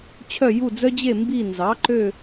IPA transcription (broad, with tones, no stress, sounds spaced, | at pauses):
t͡ɕʰ œ˦˨ j u˦˨ d͡z œ˦ d͡ʑ e˦˨ m b i˦˨ n z ɑ˩˥ ǃ ø˦˨